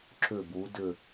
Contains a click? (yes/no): yes